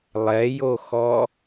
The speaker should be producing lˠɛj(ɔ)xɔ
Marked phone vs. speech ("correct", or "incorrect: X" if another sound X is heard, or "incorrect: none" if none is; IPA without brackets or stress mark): incorrect: o